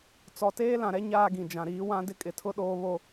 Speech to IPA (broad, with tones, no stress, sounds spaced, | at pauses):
t͡s ɔ˨ t eː˦ l ã˨ ɾ ɛ˦ ɲ aː˦ ɡ ĩ˨ d͡ʒ ã˨ ɾ iː˨˦ w ã˦ d ɪ˦ kʼ ɪ˨ tʰ ʊ˦ ɗ oː˦ β o˦